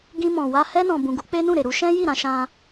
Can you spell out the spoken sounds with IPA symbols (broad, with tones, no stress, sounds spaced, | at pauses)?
ɡ ĩ˧ m ɔ̃˨ w a˧ h ɛ˧ n ɔ̃˨ b ũ˨ ɡ u˨˦ k͡p e˦ n ũ˦˨ ɾ e˨ ɾ u˧ ʃ ɛ̃˦ j i˦˨ ɾ ã˧ ʃ ã˧